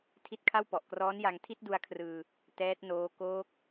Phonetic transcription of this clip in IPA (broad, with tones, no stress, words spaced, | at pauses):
tʰi˦˥t̚kʰa˥˩wpɔ˨˩ʔ krɔː˦˥nja˧ŋ tʰi˥˩t̚du˧a̯kʰrɯː˧ | tɛː˦˥t̚noː˦˥ koː˦˥k̚